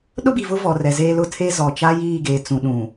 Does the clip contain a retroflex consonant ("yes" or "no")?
no